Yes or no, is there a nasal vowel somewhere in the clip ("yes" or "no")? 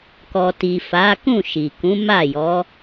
yes